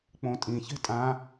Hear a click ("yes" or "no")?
no